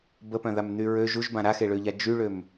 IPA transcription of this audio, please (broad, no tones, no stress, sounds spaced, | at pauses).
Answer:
b ə p œ̃ ð a m n̪ y ɹ ø ʒ u ʒ b ã ɾ a x e ɭ ø ʎ a d͡ʒ y ɭ ø m